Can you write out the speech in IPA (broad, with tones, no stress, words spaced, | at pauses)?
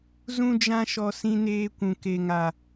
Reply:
zũ˦d͡ʒã˦ʃɔ˧ sĩ˧neː˧kʷũ˨ ke˨ŋa˨